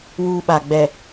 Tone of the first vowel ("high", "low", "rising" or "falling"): high